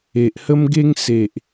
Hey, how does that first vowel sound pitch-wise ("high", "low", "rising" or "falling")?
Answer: low